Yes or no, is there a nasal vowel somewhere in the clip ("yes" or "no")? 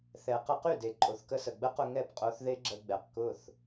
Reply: no